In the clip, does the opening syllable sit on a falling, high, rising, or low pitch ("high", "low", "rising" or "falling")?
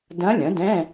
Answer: rising